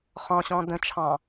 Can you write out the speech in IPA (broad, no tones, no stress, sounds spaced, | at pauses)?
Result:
χ ɔ̃ ɕ ɔ̃ d ə̃ t͡ʃʰ ɑ̃